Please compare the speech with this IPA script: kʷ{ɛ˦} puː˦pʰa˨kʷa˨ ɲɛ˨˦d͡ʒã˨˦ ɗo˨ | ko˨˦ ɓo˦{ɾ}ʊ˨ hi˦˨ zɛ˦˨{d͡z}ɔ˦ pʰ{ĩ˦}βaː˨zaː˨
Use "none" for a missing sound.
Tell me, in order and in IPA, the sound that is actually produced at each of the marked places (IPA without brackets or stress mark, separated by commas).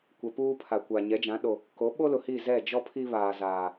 ɛ˨, l, d͡ʒ, i˦